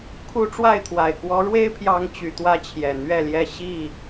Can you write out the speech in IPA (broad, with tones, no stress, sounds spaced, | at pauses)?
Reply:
kʰ u˦ ʈ͡ʂ w a˥˨ ɪ̯ t̪ʰ w a˨˩ ɪ̯ k w ɔ˨˦ ɻ w e˦ ɪ̯ pʰ j ɑ˨˦ ŋ t͡ɕ y˨˦ t̪ w ä˦ t͡ɕʰ j ɛ˨˩ n̪ ɥ ɛ˥˨ l j ɛ˥˨ ɕ i˥˨